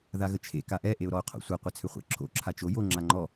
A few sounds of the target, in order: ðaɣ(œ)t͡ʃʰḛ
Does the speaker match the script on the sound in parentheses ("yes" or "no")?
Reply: no